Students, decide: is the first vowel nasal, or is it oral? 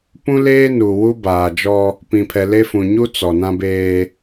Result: nasal